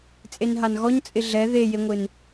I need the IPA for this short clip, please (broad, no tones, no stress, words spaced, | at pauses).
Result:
t͡sʼenɦanɣɔɲ t͡sʼɪɮɛ ðejeŋʷɪn